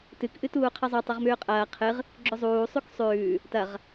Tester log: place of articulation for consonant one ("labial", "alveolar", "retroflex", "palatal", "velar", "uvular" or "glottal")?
alveolar